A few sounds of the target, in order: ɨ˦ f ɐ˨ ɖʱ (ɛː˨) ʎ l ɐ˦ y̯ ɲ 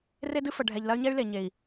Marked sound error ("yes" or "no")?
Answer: yes